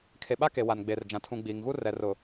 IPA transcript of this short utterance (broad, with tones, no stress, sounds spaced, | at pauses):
kʰ e˨ ɓ a˦ k e˨ w a˨ n ɡ͡b e˨ r d͡ʒ ã˨ tʰ ũ˨ ɡ͡b iː˨ ŋ ɣ u˦ r ɛ˨ r ʊ˨